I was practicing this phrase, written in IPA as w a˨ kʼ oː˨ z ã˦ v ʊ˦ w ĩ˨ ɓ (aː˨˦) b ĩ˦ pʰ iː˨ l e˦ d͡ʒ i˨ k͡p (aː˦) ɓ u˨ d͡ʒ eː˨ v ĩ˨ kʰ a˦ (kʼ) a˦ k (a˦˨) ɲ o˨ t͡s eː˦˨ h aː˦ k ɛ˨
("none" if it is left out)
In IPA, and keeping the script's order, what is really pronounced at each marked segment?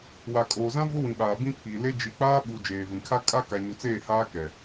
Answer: aː˨, aː˦, kʼ, a˨

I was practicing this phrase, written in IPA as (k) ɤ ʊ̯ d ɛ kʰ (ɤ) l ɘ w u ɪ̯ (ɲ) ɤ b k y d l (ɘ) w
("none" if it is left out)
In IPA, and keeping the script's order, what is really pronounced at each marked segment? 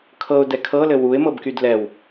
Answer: kʰ, ɤ, m, ɛ

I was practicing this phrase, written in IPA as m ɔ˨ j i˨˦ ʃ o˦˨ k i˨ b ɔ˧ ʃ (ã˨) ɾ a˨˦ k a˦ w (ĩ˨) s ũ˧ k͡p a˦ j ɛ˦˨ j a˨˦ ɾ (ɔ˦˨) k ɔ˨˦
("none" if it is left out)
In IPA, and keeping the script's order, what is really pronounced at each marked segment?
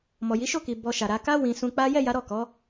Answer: a˨, ĩ˧, ɔ˦˨

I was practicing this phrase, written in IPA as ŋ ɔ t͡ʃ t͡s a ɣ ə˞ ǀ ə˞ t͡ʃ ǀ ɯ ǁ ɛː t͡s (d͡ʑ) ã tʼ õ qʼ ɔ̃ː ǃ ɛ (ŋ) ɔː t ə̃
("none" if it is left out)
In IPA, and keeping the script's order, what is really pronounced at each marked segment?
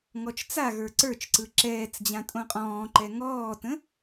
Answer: d͡ʑ, ŋ

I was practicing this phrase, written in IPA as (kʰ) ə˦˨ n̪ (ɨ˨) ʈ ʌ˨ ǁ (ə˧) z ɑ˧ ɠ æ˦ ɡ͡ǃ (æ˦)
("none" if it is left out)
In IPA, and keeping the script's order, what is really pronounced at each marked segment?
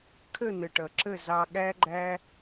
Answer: kʰ, ə˨, ə˦˨, æ˦

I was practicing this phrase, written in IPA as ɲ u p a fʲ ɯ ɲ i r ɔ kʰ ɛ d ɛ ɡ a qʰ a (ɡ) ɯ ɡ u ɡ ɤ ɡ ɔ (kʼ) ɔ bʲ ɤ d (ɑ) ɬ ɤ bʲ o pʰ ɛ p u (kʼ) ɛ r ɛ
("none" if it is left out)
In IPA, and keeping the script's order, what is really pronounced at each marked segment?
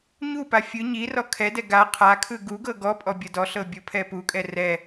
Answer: kʰ, pʼ, ɔ, kʼ

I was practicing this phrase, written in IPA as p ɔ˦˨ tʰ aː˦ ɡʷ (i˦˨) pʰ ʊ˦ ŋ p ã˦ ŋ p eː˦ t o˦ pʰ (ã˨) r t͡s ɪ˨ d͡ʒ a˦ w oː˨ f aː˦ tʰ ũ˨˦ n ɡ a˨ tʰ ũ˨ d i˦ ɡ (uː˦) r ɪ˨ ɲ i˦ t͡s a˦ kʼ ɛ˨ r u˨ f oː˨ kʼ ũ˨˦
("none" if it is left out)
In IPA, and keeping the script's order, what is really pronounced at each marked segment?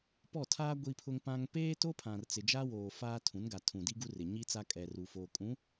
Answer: i˦, ã˨, u˦

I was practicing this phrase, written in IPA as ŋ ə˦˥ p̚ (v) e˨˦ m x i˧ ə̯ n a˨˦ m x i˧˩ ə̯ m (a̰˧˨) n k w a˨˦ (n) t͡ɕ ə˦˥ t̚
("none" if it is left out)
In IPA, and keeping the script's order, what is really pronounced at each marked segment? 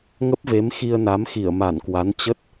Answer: v, a˧˩, n

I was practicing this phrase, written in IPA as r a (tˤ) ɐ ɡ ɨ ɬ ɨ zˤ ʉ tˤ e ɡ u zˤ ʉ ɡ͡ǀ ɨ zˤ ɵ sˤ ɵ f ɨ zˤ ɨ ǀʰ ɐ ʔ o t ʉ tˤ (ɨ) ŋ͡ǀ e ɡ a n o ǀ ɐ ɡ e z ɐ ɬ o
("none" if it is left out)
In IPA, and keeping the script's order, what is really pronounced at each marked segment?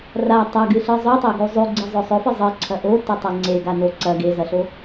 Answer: tˤ, e

